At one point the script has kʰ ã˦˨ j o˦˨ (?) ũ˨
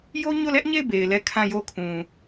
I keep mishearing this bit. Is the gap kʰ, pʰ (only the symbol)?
kʰ